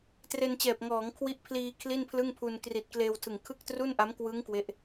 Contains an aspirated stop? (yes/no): yes